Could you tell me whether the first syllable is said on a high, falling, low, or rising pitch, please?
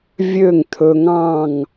falling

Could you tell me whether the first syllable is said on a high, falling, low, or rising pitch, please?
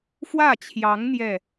falling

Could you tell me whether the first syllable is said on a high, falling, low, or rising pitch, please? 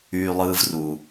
low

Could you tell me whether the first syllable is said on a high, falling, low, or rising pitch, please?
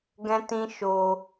high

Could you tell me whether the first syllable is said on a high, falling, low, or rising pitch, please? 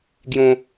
high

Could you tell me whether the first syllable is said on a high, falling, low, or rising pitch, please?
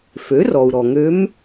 rising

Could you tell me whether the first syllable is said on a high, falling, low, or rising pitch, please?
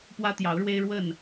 high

